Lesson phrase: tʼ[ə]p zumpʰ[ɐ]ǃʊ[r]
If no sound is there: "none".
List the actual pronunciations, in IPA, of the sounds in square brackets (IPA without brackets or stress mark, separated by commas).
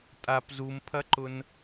a, ɐ, n